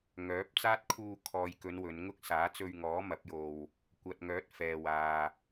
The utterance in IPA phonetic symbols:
ŋ œː˨˥ p̚ t͡s aː˥ t̚ kʰ uː˧ kʰ ɔː˨ j k ɵ˨˧ n w ɵ˨˧ n ŋ ʊ˥ k̚ s aː˨˥ t͡s ɵ˧ ɥ ŋ ɔː˨˥ m ɐ˨˥ p̚ j o˧ w | kʷ ɐ˨ t̚ ŋ œː˨˥ t̚ f ɛː˨ w aː˨

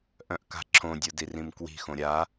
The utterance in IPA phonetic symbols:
ʔ œ̃ ʔ k a̤ ǁʰ õ dʲ o d i r ĩ m k w i̤ x õ ɾʲ a

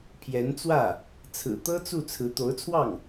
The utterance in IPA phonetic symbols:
pʰ j ɛ˧˥ n t͡s w ä˥˩ | t͡sʰ ɹ̩˨˩ t̪ ɤ˥ t͡s u˥˩ t͡sʰ ɹ̩˧˥ t̪ o˧˥ ʊ̯ t͡sʰ w ɑ˥˩ ŋ

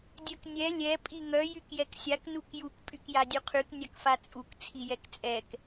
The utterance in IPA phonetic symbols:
dʲ œ k nʲ ɛ lʲ ɛ pʼ i ŋ œ j y k j ɛ k sʲ a k n u k j u k pʼ y k j a dʲ u qʰ y k nʲ a k f a t͡sʼ u k t͡sʰ i j ɛ k t͡sʼ ɛ k

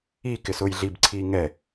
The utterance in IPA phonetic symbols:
i k ɪ s ʊː j ɮ i b ǀʰ iː ŋ ɛ

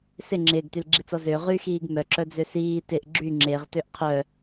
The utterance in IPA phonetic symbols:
s ɪ ŋ͡ǁ ɪː ɡ t y l ɡ͡ǁ i t͡s ɔ z ø ʁ y x iː ɡ m œ ǁ œ d͡z ø s iː t ɪ ʔ ɡ͡ǁ y ŋ͡ǁ e ʁ t ø ʔ qʰ œ

